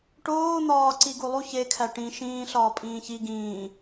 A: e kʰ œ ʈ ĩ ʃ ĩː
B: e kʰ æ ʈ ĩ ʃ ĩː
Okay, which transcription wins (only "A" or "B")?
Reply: B